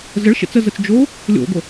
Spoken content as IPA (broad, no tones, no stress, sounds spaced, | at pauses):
z ə ɭ ʃ ḛ t͡s ə z ə t͡s d͡ʒ o | lʲ o̰ ɡʷ ə